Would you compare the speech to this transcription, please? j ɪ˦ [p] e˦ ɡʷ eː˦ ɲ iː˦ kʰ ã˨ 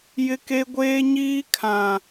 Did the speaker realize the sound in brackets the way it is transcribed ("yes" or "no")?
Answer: no